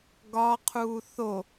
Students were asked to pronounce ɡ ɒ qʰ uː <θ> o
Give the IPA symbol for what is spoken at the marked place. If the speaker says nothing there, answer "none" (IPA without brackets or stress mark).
θ